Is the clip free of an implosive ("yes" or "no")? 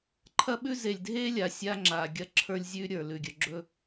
no